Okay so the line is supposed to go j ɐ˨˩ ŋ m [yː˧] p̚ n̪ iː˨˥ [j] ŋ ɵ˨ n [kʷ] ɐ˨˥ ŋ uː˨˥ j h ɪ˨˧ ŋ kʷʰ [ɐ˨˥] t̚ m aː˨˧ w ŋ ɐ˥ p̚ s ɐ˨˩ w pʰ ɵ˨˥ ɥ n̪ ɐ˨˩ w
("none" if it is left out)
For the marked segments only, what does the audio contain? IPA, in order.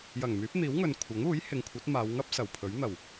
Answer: yː˨˥, w, kʷʰ, ɐ˨˥

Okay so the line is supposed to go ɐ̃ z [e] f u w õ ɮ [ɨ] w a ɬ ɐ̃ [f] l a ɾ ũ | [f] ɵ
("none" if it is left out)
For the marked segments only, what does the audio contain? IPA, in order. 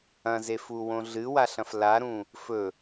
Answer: e, ɨ, f, f

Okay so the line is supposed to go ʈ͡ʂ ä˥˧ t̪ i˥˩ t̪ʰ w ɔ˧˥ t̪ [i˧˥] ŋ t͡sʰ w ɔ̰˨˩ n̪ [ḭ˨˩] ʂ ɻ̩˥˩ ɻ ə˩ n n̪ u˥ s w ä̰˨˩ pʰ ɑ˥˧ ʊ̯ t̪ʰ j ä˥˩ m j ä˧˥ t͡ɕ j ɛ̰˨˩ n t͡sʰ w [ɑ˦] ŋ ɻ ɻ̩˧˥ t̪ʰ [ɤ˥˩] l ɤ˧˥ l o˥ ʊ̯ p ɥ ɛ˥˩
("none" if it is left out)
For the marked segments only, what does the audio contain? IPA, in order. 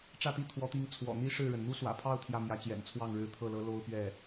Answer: i˧˥, i˥, ɑ˥˩, ɤ˥˩

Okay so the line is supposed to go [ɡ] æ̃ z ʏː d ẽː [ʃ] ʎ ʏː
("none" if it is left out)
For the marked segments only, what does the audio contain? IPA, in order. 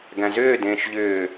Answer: ɡ, ʃ

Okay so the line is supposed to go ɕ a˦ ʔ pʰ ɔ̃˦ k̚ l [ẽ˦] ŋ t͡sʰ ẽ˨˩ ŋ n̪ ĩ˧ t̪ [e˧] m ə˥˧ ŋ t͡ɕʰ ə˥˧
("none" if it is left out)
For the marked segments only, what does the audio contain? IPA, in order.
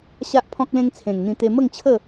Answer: ẽ˦, e˧

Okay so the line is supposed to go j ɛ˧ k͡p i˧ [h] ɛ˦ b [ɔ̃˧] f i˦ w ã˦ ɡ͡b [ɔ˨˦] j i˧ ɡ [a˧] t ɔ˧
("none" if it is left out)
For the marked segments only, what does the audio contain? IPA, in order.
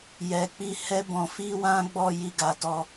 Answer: h, ɔ̃˧, ɔ˦˨, a˧

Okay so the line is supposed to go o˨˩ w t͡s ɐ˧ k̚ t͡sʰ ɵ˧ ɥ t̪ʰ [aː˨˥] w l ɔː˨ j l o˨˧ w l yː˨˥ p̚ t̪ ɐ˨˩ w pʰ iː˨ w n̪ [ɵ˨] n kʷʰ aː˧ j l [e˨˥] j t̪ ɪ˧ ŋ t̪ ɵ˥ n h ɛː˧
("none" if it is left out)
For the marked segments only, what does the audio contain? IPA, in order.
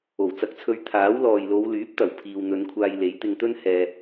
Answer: aː˨˥, ɵ˨˧, e˨˥

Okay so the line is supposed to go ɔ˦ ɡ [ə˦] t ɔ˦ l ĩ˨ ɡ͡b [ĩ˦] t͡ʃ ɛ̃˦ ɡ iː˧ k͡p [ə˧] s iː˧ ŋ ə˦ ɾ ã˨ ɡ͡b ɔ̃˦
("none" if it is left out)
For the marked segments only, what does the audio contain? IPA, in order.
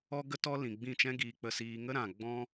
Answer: ə˦, ĩ˦˨, ə˧

